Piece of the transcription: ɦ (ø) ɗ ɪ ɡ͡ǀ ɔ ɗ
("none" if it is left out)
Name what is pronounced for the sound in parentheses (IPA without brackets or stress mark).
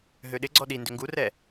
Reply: ø